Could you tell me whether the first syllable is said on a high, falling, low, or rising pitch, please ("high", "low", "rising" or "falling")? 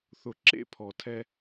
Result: low